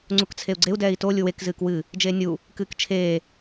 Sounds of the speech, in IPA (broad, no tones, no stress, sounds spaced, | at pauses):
ŋ͡ǀ u k t͡sʰ e u̯ ɡ͡ǀ e u̯ d ɛː i̯ t o lʲ u w e k z ɨː k w ɨ | d͡ʒ eː nʲ u | k ɨː k t͡ʃʰ eː